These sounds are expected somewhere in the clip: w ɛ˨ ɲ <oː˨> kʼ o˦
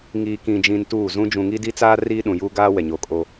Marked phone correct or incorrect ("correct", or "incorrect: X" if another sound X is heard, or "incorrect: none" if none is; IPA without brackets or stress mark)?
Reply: incorrect: o˨